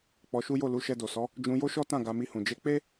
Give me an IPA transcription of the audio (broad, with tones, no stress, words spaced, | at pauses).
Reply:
k͡pɔ˧ʃu˦jo˦˨ lu˨˦ʃɛ˧do˨sɔ˨˦ | d͡ʒũ˧jo˦ʃɔ˦tã˦˨ ɡa˨˦mi˧hũ˨ d͡ʒe˨˦k͡pe˦